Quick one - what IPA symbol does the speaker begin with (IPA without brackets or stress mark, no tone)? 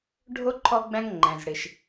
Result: ɖʱ